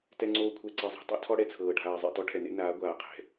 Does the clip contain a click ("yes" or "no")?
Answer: yes